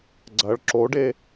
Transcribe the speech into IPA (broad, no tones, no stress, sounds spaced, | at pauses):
ɡ͡ǀ ɐ ɭ ǁ o ɖ e